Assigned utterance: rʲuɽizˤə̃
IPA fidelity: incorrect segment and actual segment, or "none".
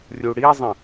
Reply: none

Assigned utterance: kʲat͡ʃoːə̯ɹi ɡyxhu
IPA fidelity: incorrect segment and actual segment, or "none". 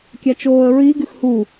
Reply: none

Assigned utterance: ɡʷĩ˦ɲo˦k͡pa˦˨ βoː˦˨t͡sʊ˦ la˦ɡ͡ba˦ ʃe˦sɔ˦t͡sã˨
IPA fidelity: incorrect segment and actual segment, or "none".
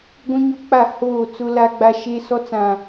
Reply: β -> h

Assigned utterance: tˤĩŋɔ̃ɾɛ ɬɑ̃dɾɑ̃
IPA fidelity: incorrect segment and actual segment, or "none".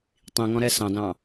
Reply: ɬ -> s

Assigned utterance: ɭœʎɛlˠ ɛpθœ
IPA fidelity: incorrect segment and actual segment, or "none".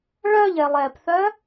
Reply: none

